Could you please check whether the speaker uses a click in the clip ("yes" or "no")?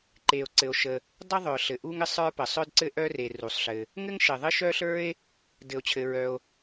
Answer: yes